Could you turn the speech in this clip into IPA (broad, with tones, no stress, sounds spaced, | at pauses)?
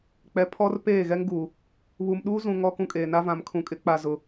k͡p ɛ˨ pʰ ɔ˦ r p eː˦˨ ɣ ɛ˦ ŋ ɡ uː˨ | β u˨ m ɗ uː˦ z ũ˨ ŋ ɔ˦ k ũ˦ kʼ eː˨ n a˦ v ã˨ m kʰ ũ˨ kʼ ɪ˦ k͡p a˨ z ʊ˨